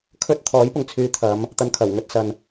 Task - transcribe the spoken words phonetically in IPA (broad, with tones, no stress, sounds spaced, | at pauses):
kʰ ɵ˥ t̚ t̪ʰ ɔː˨˥ j p ʊ˨ ŋ t͡sʰ yː˨˧ t̪ʰ ɐ˨˧ m | t̪ ɐ˨˧ n kʰ ɐ˨˩ w ŋ ɵ˧ t̚ s ɐ˨ n